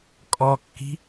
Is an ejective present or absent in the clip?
present